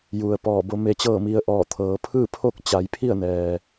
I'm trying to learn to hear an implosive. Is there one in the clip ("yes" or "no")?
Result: no